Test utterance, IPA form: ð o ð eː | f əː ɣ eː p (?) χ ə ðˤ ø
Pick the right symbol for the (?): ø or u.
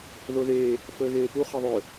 u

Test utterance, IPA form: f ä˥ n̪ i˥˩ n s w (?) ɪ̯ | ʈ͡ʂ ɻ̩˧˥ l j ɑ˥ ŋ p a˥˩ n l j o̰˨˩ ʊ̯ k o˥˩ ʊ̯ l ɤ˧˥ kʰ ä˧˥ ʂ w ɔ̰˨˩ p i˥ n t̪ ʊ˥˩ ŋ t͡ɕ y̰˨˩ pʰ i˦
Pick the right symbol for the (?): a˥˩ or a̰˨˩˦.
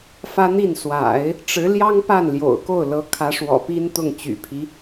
a̰˨˩˦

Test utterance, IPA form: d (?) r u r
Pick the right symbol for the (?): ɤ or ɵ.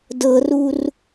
ɤ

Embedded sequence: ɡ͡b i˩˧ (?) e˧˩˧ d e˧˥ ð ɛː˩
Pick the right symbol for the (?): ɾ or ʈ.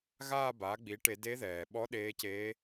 ʈ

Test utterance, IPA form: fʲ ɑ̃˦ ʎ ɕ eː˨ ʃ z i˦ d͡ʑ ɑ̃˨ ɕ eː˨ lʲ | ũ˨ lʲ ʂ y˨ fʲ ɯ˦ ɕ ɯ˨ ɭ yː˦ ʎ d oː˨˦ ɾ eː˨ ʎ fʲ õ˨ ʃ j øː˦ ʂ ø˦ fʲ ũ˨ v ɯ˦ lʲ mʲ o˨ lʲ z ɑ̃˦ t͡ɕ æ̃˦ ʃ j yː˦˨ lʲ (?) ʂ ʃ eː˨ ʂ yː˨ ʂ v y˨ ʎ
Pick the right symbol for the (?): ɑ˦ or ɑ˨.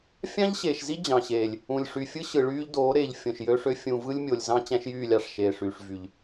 ɑ˨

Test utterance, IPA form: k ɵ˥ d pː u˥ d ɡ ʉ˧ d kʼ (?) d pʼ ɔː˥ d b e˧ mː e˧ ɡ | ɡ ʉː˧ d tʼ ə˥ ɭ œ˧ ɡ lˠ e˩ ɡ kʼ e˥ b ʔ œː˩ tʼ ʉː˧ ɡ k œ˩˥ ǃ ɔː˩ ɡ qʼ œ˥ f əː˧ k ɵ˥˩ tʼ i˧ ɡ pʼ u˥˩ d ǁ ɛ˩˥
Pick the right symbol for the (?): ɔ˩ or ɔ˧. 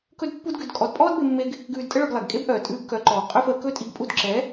ɔ˧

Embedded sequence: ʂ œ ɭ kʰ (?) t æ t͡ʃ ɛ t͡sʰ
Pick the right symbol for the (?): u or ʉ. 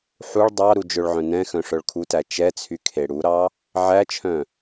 u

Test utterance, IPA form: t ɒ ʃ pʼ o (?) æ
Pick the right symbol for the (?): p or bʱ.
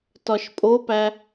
p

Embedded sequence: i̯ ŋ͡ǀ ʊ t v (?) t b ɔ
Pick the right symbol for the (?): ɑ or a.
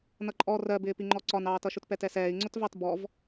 ɑ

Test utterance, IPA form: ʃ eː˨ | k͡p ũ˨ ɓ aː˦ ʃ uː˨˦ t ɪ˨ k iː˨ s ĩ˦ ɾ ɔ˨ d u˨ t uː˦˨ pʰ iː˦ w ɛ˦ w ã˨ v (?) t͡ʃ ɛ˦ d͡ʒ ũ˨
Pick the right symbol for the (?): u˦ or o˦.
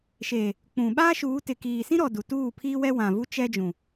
u˦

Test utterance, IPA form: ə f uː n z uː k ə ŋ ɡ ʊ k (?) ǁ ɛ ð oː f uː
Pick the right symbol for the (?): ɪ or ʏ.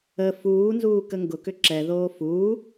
ʏ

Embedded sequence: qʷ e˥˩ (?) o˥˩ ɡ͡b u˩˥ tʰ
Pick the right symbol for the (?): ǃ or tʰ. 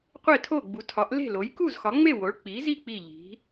tʰ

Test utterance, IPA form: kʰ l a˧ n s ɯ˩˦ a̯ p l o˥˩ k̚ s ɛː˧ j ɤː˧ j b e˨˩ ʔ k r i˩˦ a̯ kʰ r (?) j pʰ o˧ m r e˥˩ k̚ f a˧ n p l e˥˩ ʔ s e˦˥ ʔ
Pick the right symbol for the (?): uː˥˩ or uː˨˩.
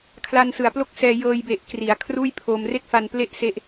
uː˥˩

